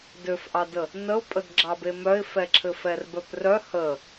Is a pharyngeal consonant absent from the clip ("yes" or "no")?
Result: yes